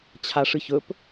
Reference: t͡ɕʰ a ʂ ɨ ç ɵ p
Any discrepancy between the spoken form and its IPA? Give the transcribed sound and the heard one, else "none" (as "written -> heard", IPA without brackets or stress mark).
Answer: none